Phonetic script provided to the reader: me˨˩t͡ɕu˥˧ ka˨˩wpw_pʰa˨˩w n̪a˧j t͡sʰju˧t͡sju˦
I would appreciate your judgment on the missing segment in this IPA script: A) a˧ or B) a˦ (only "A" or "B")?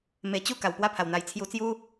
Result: B